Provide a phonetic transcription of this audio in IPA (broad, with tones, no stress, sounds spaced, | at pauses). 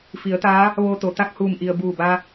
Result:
f i˩˧ ə̯ t̪ aː˧˥ | ʋ oː˧ t̪ o˩ t̪ a˥˨ k̚ h uː˧˩ m ʔ i˩ ə̯ b uː˧˩ b a˧